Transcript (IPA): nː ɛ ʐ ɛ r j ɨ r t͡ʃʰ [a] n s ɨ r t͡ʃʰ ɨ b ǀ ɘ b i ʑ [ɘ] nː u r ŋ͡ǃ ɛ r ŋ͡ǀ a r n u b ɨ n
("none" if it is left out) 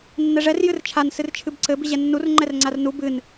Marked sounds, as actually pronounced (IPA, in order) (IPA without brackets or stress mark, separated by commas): a, ɛ